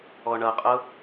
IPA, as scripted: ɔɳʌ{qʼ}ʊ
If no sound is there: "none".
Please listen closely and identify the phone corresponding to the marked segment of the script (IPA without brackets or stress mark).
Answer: qʼ